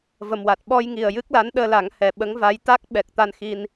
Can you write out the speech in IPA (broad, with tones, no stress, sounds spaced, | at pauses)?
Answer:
v ə˨˩ m w a˨˩ t̚ ɓ ɔ˧ j ŋ i˨˩ ə̯ j ɨ˦˥ k̚ l a˧˥ n ɗ əː˧ l a˨˩˦ ŋ h ɛ˨˩ ɓ ə˧˥ ŋ v a˧˥ j t̪ a˦˥ k̚ ɓ ɛ˨˩ k̚ t̪ a˧ n x i˧ n